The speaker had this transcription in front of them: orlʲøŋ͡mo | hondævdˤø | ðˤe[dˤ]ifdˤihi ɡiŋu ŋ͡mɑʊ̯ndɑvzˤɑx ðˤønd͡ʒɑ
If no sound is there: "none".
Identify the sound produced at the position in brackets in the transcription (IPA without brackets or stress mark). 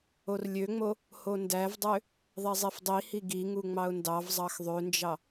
zˤ